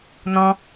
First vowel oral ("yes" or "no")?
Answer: no